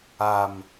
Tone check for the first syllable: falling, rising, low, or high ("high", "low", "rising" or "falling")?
low